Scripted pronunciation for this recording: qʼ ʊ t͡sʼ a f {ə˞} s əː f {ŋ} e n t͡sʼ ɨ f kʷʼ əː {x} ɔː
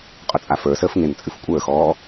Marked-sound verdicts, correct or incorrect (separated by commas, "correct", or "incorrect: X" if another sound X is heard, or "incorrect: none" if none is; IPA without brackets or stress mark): correct, correct, correct